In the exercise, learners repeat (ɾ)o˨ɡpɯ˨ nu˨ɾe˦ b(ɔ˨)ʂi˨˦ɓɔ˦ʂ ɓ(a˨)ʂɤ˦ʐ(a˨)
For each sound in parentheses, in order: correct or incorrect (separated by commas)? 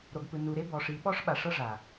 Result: correct, correct, correct, correct